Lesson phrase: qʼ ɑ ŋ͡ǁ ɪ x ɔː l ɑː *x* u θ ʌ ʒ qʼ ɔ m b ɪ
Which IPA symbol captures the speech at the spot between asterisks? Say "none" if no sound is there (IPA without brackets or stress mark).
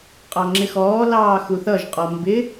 x